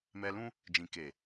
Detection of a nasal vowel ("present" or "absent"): present